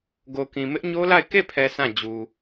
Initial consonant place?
velar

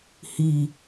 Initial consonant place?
glottal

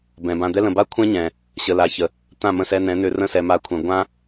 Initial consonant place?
labial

